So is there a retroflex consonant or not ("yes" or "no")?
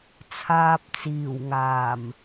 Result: no